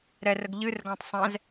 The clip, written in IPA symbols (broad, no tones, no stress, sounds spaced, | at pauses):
ɾ ɛ r ə ɡ ʎ ɨ r ɡ ã tˤ sˤ ɛ̃ z